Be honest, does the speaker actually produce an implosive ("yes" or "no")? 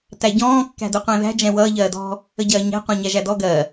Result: no